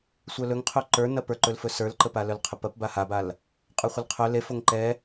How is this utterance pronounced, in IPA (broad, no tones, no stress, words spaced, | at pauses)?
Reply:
sʷœlɵŋqʰɵ ǃə˞nɐ pə˞ǃɵlfɵ sə˞lǃəpalœl qʰəpɐpba habal | qʼə˞χʷəlqʰœ lefoŋ ǃɛ